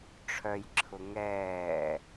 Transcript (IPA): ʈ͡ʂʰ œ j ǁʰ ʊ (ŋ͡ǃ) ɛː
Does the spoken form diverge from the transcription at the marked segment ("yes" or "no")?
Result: yes